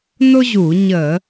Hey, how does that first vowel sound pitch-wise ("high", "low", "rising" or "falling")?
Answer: high